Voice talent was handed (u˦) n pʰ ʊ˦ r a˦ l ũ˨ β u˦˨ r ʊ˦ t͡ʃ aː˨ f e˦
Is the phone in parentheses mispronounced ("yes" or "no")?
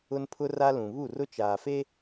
yes